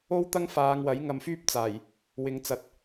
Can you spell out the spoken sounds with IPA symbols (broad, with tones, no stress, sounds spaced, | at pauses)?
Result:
o˥ w t̪ ɐ˥ ŋ f aː˨˧ ŋ w ɐ˨˥ j ŋ ɐ˧ m f yː˥ p̚ t͡s aː˨˩ j | w ɪ˨˧ ŋ t͡s ɐ˨ t̚